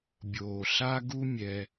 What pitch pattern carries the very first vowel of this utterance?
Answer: low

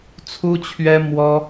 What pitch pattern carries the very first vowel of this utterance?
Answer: high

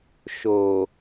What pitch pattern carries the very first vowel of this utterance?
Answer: low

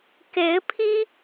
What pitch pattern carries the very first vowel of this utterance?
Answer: rising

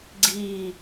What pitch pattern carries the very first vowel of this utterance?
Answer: falling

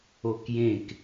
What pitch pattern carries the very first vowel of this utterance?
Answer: high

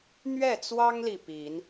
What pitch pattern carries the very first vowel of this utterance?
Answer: falling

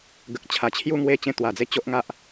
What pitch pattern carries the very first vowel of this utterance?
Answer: low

